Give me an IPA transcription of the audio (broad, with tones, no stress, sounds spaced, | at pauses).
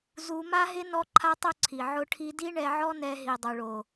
z u˧ m a˦ ɦ ɪ˦ n ɔ˦ ǃʰ a˦ tˤ o˦ ǀʰ i˨ ʕ ʊ˧ ʈʰ i˧ d i˦ ɳ ɛ˧ ʕ ɔ˦ n ɛ˧ ɦ i˨ dˤ u˨ ɭ o˨